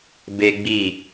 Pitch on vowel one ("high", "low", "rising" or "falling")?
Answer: high